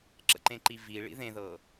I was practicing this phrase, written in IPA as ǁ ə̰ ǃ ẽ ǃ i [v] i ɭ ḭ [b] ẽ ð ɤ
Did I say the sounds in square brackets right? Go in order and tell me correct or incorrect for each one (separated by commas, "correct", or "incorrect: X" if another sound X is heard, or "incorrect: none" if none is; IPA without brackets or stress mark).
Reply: correct, incorrect: ð